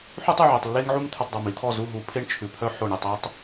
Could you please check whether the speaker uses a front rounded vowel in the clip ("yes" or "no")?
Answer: yes